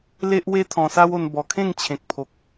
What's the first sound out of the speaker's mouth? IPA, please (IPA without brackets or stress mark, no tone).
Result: l